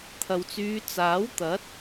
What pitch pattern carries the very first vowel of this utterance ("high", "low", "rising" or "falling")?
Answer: low